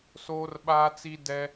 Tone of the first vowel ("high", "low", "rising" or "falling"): high